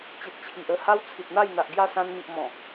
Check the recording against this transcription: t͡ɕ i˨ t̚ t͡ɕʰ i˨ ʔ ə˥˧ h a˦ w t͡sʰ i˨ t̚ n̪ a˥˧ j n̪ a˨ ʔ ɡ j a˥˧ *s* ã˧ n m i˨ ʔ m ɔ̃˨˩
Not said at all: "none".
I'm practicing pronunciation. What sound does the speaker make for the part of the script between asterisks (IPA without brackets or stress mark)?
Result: s